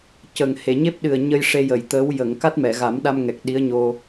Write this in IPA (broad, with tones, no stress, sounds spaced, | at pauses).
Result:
c ə˨˩ ŋ h e˨˩˨ ɲ e˦˥ p̚ ɗ ɨ˨˩ ə̯ ɲ ə˧ j ʂ e˧ j ə˨˩˨ j t̪ əː˧˥ w j ə˨˩˨ ŋ k a˦˥ t̚ m ɛ˨˩˨ ɣ a˨˩˦ m ɗ a˧ m ŋ ɛ˨˩ k̚ ɗ i˧˥ ə̯ ɲ o˧